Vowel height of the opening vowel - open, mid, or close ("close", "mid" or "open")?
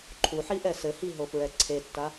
close